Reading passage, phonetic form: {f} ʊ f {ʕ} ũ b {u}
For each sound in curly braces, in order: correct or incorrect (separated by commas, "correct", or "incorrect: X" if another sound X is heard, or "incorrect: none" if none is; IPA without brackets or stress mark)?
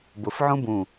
incorrect: b, correct, incorrect: ũ